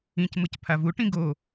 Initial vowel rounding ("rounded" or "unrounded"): unrounded